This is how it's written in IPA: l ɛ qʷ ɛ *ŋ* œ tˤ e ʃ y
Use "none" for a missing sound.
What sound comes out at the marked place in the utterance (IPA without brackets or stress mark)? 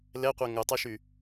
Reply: ŋ